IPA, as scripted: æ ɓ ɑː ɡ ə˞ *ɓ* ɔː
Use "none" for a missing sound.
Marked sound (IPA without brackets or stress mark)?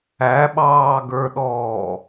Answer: ɗ